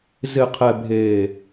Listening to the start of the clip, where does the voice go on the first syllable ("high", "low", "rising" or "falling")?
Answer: low